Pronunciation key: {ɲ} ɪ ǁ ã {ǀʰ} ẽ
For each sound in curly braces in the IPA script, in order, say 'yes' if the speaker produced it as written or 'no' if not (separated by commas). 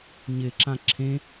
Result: yes, no